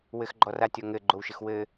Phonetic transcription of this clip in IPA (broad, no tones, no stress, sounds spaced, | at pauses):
w ɘ x ɡ͡ǃ ɔ r a tʲ ɔ ŋ ɘ ɡ͡ǃ o w ʃ ɘ x w ɘ